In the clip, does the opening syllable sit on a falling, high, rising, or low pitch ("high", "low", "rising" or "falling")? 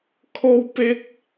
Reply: high